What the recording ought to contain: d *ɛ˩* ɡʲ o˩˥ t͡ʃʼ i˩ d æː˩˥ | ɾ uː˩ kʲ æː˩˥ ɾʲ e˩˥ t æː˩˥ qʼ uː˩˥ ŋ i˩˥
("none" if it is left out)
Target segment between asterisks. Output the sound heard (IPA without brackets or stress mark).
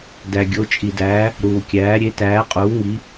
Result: æ˩